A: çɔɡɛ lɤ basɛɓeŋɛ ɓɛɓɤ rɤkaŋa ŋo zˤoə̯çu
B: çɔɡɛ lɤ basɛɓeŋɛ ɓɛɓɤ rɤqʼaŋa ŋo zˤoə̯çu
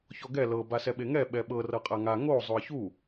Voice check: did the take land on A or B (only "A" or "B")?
B